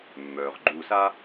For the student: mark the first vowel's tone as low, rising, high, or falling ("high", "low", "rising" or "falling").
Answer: low